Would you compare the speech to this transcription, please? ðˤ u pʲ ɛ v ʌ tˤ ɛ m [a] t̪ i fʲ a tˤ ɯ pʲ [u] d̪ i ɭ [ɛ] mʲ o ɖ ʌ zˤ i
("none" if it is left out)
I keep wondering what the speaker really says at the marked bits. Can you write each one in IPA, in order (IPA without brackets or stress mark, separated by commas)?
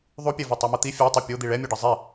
ʌ, o, ɛ